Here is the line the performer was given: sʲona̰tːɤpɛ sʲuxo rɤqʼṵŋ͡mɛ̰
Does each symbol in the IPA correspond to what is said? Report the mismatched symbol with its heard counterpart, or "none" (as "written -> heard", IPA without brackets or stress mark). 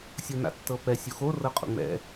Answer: none